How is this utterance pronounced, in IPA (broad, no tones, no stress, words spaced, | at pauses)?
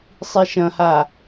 sˤiʃɐ̃ha